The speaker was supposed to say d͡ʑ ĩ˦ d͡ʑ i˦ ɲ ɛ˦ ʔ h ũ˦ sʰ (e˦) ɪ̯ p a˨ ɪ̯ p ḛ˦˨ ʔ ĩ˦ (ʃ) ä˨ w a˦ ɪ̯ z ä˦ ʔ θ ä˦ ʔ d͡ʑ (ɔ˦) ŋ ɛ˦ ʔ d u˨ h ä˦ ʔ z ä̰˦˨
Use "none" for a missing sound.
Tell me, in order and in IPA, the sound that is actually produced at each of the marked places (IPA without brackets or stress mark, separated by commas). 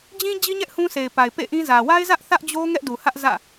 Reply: e˨, z, o˦